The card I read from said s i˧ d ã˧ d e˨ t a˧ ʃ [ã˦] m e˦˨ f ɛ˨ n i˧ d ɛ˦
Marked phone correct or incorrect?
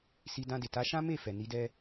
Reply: correct